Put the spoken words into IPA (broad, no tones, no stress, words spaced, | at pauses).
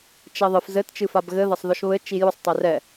t͡ʃɛðˤɨf zɘtt͡ʃɨ fabɣɘðɐsˤ ðɔʃβɘ t͡ʃijusˤ tˤerɛ